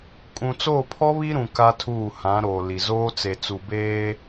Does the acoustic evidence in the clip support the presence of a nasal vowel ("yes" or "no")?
yes